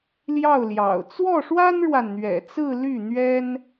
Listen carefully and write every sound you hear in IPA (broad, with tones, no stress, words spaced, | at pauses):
ljɑ˥˩ʊ̯ljɑ̰˨˩ʊ̯ t͡swɔ˥˩ʂwa˥nɻwa˨nn̪ɥɛ̰˨˩ t͡sɹ̩˥˧ly˥˩n̪ɥɛ˥n